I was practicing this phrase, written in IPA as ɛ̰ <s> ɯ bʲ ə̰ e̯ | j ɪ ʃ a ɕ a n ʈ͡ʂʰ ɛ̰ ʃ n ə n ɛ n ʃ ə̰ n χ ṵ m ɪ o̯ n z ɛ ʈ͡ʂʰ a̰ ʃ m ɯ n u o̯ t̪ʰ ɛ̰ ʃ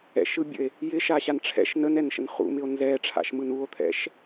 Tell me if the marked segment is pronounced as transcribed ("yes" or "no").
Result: no